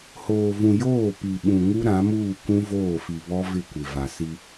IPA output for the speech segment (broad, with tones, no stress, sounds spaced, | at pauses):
h oː˨ v ũ˨ j oː˦˨ p i˨ ɓ ũ˨ ŋ u˦ ɾ ã˨˦ m uː˦˨ kʷ ũ˦ v oː˦˨ f i˨ β ɔ˦ v ɪ˦˨ kʷ ɪ˨ v a˨ s i˦